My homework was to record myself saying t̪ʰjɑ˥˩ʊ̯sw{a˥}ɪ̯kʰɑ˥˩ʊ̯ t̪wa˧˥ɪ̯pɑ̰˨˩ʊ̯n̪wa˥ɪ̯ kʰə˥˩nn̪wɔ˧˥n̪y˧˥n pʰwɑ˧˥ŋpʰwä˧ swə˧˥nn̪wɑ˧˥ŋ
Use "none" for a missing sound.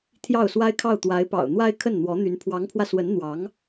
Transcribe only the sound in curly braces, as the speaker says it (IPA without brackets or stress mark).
a˥